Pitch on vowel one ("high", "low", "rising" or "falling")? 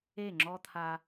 falling